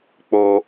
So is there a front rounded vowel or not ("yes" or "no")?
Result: no